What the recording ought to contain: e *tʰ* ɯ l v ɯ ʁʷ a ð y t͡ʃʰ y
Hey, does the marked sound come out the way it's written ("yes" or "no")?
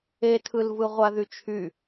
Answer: yes